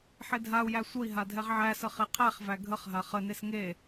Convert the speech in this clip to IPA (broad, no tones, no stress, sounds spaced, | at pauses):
ħ e dʱ a u̯ j æ sʷ ə i̯ ɦ a dʱ ɛ ʁ ʕ æ s ə χ e qʰ æ χ v æ ɡʱ ə χ ɦ a χ ə n e s ŋ e